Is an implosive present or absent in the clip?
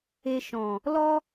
absent